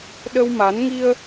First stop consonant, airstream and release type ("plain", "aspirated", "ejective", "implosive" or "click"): implosive